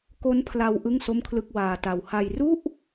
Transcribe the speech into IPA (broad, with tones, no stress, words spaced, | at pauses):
ko˦˥npʰla˧w ʔɯ˥˩ŋso˥˩mkʰlɯ˥˩k̚ waː˧ta˧w ha˧j ru˥˩ʔ